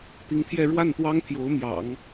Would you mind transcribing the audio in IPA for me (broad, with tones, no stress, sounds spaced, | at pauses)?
t̪ i˧˥ ŋ t̪ʰ j ɛ˥˧ ɻ w a˥˩ n t̪ w ɑ˥ ŋ t̪ʰ j o˧˥ ʊ̯ m j ɑ̰˨˩˦ ŋ